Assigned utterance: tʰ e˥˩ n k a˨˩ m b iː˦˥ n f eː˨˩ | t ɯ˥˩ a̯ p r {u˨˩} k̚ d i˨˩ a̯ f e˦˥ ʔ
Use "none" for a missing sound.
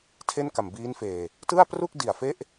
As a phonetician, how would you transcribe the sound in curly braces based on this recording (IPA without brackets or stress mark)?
u˥˩